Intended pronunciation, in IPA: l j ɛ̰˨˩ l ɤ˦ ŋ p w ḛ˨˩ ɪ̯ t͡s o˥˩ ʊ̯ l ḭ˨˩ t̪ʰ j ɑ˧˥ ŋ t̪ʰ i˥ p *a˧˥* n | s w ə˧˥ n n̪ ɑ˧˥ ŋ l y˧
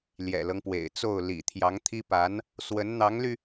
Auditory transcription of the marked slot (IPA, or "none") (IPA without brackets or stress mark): a˧˥